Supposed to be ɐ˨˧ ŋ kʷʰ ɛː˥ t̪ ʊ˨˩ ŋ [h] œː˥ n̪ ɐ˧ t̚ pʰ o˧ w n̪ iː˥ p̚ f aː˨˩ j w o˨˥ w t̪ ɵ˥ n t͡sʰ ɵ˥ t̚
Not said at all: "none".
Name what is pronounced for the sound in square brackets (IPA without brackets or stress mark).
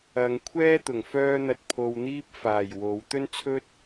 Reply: f